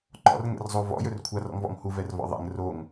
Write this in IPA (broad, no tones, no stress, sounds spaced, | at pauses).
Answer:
ǃ ɔ̰ r ŋ ɛ̰ r zˤ o v ɔ̰ j ɵ r kʷʰ a r ɔ̰ ŋ v ɔ̰ ŋ h u v ɛ r v ɔ̰ ðˤ ɛ̰ ŋ r o ŋ